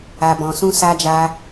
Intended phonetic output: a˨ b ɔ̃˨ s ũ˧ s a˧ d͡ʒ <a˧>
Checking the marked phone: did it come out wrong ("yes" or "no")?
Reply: no